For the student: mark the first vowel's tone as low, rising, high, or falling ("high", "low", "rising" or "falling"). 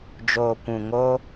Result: low